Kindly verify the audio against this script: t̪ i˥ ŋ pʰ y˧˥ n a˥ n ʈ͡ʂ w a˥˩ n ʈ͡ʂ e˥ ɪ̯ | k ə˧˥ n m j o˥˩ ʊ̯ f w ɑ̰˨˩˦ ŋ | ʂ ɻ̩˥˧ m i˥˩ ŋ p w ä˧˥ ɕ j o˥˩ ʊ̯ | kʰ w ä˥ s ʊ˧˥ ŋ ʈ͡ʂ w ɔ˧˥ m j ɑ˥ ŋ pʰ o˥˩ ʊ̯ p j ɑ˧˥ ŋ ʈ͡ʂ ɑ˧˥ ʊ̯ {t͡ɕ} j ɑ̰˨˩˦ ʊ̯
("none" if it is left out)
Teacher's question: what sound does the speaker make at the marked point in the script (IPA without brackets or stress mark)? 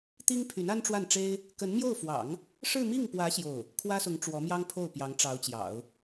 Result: t͡ɕ